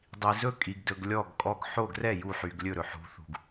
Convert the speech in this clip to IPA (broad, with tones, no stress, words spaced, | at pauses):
dˤi˩ zɵ˥˩kʼi˩ɡdɵ˩ɡ lʲɔ˥˩ɡkʼɔ˥˩ɡ ħo˥˩ ɡrɛ˥˩ ju˥˩ħy˩ɡ lʲɵ˥˩ɾɵ˩ ħṳ˩θṳ˩ɡ